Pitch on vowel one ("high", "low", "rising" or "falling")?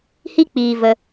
high